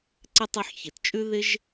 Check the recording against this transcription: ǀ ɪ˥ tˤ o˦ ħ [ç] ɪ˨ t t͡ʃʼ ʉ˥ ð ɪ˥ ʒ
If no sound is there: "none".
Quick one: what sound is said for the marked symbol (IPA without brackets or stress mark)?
ç